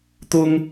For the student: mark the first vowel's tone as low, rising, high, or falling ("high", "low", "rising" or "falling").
high